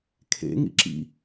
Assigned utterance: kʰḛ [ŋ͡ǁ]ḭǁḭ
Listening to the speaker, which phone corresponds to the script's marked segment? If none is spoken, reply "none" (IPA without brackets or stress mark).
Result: ŋ